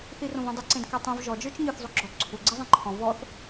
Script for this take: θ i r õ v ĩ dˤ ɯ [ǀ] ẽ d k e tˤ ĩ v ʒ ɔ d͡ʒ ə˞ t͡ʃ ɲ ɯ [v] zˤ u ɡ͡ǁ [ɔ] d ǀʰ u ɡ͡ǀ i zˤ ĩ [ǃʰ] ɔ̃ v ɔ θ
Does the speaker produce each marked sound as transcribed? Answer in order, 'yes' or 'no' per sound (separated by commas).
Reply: yes, no, yes, yes